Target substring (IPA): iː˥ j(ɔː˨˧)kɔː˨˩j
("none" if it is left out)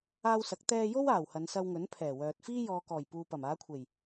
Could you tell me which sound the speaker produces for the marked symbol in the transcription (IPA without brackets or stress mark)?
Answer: ɔː˨